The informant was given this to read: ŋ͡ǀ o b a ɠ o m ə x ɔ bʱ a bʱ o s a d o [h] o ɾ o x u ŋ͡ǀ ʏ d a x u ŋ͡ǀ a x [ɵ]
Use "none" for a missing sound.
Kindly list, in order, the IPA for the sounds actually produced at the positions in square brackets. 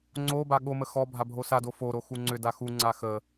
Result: f, ə

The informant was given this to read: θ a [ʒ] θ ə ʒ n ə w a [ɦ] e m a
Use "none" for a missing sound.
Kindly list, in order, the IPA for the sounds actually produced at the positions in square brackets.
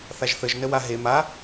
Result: ʒ, ɦ

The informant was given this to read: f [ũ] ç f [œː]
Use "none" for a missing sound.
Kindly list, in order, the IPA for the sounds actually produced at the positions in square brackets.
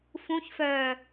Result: ũ, œː

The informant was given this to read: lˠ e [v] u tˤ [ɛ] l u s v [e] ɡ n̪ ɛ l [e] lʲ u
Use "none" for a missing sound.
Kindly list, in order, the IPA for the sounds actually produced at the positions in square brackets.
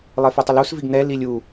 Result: f, ɪ, i, i

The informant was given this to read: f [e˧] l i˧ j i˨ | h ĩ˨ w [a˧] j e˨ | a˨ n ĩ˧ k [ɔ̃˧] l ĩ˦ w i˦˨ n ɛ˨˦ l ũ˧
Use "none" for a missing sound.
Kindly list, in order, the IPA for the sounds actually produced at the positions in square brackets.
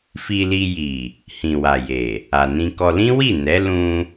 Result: i˧, a˨, ɔ˧

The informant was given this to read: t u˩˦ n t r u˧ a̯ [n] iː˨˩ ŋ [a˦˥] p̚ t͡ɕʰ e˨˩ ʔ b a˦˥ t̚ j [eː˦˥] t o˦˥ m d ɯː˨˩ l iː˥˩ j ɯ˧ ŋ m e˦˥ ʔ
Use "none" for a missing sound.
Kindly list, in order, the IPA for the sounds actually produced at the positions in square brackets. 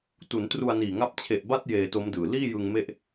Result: n, a˦˥, eː˧

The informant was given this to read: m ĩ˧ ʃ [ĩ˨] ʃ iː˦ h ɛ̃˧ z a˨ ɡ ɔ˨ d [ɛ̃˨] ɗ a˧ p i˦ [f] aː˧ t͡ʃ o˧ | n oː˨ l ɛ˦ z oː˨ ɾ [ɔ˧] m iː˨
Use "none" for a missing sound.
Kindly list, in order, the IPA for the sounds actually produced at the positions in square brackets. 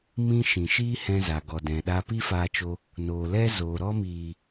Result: ĩ˨, ɛ̃˨, f, ɔ˧

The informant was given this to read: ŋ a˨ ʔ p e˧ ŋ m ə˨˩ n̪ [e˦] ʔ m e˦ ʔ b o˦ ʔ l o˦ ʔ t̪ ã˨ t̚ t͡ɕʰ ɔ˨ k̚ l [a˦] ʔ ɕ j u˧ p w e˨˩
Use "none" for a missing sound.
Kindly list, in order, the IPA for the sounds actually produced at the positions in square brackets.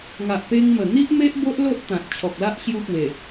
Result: i˦, a˦

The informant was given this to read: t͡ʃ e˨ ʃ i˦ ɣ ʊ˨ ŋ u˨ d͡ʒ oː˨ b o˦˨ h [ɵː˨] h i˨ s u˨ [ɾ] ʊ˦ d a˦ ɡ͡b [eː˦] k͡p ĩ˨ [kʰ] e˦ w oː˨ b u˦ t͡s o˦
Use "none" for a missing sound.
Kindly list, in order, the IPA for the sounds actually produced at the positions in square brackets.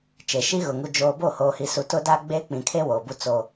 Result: oː˨, t, e˦, kʰ

